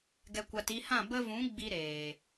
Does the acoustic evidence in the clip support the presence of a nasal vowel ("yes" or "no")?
yes